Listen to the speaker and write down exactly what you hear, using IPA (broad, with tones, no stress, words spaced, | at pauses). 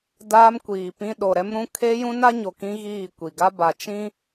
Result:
daː˦mkʷiː˨pĩ˦ ɗo˨ɾɛ˦mɾũ˦ kʰe˦ jũ˦na˦ɲo˨ kĩ˦ɣiː˦˨ kʷi˨ɡa˦ba˨ t͡ʃĩ˦